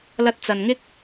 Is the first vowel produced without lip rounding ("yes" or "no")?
yes